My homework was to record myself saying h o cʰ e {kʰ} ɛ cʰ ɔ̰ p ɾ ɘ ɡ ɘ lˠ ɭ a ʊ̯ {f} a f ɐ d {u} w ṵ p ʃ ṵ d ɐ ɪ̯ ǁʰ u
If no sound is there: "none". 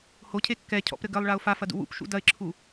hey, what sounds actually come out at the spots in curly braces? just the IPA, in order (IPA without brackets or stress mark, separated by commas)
kː, f, ṵ